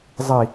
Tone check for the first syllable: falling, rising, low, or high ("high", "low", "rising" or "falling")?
low